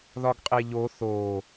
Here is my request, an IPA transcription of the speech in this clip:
ðɒɡqʼeʎo θo

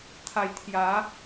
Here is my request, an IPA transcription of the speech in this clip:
t̪ʰa˨˩jt̪ʰja˨˦

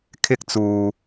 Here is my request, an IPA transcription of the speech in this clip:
kʰɪ˥k̚t͡suː˧

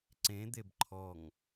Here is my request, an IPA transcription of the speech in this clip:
ǀẽd̪eb ǃʰɔŋ

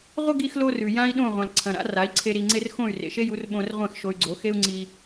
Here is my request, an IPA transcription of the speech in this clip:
ʁʷɐ˥ɡi˧xlo˧ rʉ˩ jã˥i̯ɗõ˥˩ ʁʷã˩lǀʰɐ̃˩ɾa̰˩˥ ra˩˥i̯ǀʰe˧ ɾi˩ŋ͡ǀe˧r xõ˥˩y̯rḛ˩ʃe˥ju˩˥r ɓõ˧rʁʷẽ˥˩x ʃo˧y̯ɡ͡ǀo˩˥ xe˥u̯ŋ͡ǀi˧

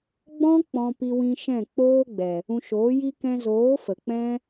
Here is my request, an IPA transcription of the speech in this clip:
ɡ͡bɔ̃˦ k͡pɔ̃˧pi˧wĩ˧ ʃɛ̃˦˨ k͡poː˦ɡ͡bɛ˨ | ũ˧ʃoː˨˦ji˦ kɛ̃˧zoː˨˦ fə˨k͡pɛ̃˦

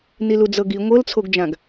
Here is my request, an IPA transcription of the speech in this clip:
nilud͡zɤɡi ŋʷɤlt͡sʰoɡd͡ʒãɡ

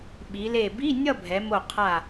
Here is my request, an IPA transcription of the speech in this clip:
ɓi˩˧le˧˩ bi˧˥˧ nʲʌ˥˧bʱɛ˩˧ mo˧˩qʰa˧˩

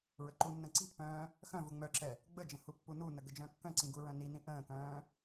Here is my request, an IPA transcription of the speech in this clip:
ɹəǃunːə̃ ǀi̤pːœ̃ː | xœ̃ vuŋ͡mœǁɛ | ɡ͡bəd͡ʒə̃ hupːununə ɡəd͡ʒœ̃kːœ̃ǀĩ ɡuɹœ̃ninĩ ʔə̃ːkœ̃ː

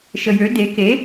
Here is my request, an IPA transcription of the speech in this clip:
ʃəjø de ke

